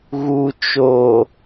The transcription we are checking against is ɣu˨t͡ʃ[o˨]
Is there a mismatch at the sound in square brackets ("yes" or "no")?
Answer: no